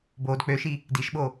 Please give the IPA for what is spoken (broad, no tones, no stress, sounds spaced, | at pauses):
b o d k͡p ø ʃ i | d i ʃ ɓ o